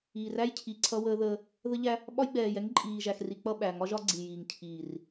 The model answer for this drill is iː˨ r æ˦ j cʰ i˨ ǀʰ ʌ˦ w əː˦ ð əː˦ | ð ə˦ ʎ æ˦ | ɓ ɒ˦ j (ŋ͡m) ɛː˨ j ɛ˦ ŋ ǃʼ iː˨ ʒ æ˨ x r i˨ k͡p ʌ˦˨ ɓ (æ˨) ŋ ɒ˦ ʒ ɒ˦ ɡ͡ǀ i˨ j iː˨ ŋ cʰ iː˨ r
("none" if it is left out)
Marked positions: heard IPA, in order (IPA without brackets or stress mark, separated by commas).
ɡ͡b, æ˨